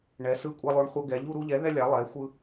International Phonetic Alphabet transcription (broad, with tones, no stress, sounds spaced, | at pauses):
ɳ ɛ˨˥ s ɯ˦ kʷʼ ɛ˦ lˠ o˦ ɳ χʷ ʌ˦ ɡ ɛ˨˥ ʎ u˦ ɾ u˦ ʎ ɛ˨˥ ð ɛ˦ lʲ a˨˥ lˠ ɛ˨˥ xʷ ɯ˦